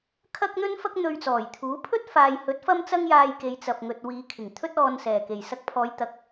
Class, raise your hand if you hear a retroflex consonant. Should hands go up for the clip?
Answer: no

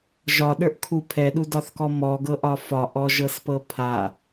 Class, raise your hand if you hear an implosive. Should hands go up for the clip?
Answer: yes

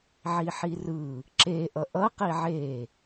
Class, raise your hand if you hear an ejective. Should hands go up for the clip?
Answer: no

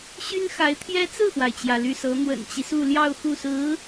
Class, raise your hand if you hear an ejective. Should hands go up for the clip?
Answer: no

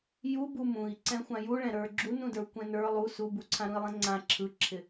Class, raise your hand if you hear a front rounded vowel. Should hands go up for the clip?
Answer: no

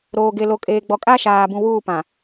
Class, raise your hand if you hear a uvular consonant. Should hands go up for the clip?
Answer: no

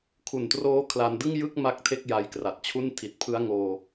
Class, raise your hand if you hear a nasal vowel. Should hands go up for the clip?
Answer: no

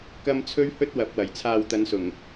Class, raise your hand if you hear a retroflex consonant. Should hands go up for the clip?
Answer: no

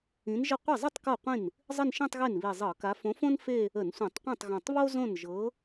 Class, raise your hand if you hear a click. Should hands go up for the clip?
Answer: no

